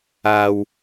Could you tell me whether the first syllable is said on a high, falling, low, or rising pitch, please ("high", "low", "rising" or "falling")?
low